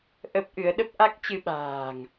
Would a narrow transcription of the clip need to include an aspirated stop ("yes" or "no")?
no